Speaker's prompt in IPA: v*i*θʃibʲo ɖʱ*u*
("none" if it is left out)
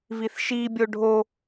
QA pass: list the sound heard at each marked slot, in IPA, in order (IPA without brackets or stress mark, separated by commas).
i, o